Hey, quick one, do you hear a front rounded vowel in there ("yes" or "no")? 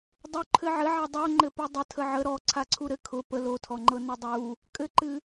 no